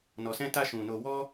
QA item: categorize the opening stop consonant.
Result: plain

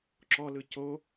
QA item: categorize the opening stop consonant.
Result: click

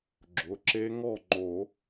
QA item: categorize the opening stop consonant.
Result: click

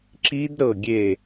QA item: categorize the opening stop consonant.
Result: click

